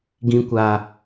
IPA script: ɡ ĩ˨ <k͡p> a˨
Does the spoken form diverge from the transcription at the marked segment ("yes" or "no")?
yes